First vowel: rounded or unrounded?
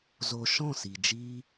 rounded